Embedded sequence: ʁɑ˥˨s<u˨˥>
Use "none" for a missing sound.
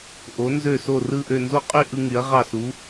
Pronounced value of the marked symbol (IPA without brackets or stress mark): u˨˥